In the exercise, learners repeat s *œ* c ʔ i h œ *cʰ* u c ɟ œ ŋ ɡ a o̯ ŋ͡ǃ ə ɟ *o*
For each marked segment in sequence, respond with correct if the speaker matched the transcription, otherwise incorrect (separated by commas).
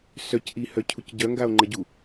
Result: correct, correct, incorrect